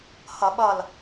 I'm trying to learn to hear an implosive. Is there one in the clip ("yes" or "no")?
yes